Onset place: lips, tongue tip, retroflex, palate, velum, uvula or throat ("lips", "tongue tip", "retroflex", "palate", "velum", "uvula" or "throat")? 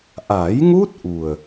throat